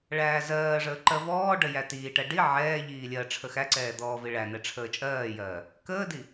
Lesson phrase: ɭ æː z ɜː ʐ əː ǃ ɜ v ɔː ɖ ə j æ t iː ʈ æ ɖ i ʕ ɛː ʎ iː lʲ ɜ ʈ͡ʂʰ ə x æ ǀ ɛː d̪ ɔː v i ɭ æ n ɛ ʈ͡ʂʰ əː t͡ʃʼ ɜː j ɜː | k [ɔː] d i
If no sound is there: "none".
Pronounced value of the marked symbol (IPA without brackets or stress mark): əː